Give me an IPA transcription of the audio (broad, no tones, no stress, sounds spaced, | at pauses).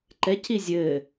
ǃ ɛ c i zʲ ɘ